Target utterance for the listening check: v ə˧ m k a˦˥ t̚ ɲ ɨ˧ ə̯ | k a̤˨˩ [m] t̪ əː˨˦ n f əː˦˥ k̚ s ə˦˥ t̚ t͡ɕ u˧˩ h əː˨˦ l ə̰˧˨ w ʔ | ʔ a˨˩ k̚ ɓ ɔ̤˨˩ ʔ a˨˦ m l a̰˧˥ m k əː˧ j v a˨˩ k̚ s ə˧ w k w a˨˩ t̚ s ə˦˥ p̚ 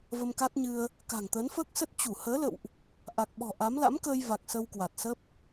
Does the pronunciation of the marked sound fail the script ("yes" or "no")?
yes